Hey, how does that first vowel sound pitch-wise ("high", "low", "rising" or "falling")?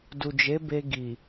low